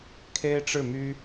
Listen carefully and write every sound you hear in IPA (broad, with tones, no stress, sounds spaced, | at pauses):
kʰ e˥ ɪ̯ ʈ͡ʂ ɻ̩˥˩ m y˥